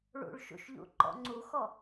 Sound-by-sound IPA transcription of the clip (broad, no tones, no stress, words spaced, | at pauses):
ɭṵɭʃṵʃʎṵ ǃɔ̰ŋ͡ǀuxɔ